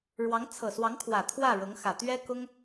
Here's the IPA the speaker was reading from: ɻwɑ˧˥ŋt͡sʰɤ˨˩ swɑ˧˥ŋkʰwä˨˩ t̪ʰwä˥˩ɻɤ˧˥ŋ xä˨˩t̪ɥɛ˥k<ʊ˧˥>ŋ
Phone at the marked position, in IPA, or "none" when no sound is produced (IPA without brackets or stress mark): ʊ˥